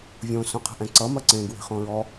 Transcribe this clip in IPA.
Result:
vʲ õ s õ qʰ ə̤ ʔ ɛ̃ ǀ ʌ m ɐ ǀ ẽ ɡ w e̤ χ õ ɹ ɔ

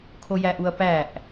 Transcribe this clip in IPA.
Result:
kʰ o j æ ʔ u ɐ̯ p æ ʔ

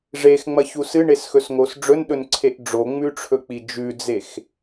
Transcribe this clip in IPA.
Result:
ʐ e x ŋ͡m ɐ ç u s ɨ ɳ e s x ɵ s ŋ o s ɖ͡ʐ ɵ n ɗ ɵ n ǀʰ e ʔ ɖ͡ʐ o ŋ͡m ʉ ʈ͡ʂʰ ɵ k͡p i d͡ʒ ʉ d͡z e x

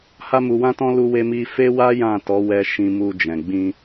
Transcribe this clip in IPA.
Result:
h a˦ m u˧ w ã˦ t ɔ̃˦ l u˦ w e˦ m i˦ f e˦ w a˦ j ã˦˨ t ɔ˨˦ w ɛ˧ ʃ ĩ˧ m u˧ d͡ʒ ɛ̃˨ ɡ͡b ĩ˧

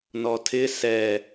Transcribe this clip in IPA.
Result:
n ɔ tʰ ɪ s ɛ

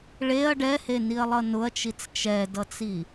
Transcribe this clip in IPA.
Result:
ɭ e ɐ̯ ɖ ɛ h e n i ɐ̯ lˠ ʌ n ʊ ɐ̯ t͡ʃ i t͡s t͡ʃ ɛ d ʌ t͡s i

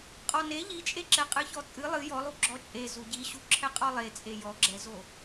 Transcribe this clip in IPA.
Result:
qʼ ɔ n e ʎ i t͡ʃʼ e ǁ ɛ qʼ ɨ ç ɔ t͡sʼ ɨ lˠ ɨ j ɔ lˠ u ɡ͡ǁ ɔ t͡ʃʼ e z u ɟ i ɕ u ǁʰ ɛ qʼ ɔ lˠ e t͡sʼ e j ɔ ɡ͡ǁ ɛ z o

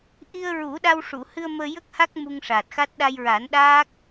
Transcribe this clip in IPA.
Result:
ʔ i˧ ə̯ ɹ u˨˩˦ ɗ a˧ w ʂ u˨˩˨ h ɨ˧ ə̯ m əː˧ j ə˦˥ k̚ h a˦˥ k̚ m u˧ ŋ ʂ aː˨˩ t̚ x a˦˥ t̚ ɗ a˧ j ɹ a˨˩˦ n ɗ aː˦˥ k̚

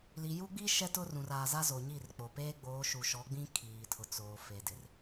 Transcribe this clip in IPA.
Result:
l i˨ j u˦ ɡ͡b i˦ ʃ ɛ˦ t ʊ˦ r ũ˨ r aː˨ z a˦ z o˨ ɲ i˦˨ r k͡p o˨ p eː˦ ɡ͡b oː˨˦ ʃ u˨ ʃ ɔ˨˦ ɡ͡b ĩ˦ kʰ iː˨ tʰ ʊ˨ t͡s oː˨ f e˨ d ɪ˨ r

